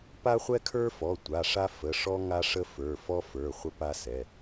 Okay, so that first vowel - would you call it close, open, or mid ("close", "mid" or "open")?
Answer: open